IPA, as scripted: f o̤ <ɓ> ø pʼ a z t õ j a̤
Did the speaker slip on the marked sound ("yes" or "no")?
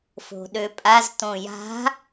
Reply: yes